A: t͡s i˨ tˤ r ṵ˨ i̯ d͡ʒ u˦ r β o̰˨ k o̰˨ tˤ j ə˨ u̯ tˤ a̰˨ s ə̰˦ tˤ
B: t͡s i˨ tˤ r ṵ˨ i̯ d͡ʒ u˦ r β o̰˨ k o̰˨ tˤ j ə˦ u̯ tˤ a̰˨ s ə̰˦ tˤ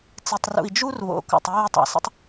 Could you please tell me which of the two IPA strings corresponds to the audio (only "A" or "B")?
B